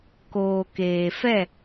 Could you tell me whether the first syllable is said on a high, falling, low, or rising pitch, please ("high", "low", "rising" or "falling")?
low